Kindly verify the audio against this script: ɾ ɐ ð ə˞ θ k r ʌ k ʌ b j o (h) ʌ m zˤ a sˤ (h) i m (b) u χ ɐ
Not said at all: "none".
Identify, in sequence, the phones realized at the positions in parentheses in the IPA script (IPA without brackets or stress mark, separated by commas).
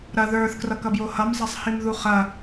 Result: h, h, ð